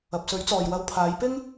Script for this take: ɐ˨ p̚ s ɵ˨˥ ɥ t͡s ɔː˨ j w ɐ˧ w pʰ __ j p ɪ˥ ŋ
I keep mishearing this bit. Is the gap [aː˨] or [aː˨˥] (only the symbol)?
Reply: aː˨˥